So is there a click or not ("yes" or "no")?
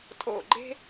yes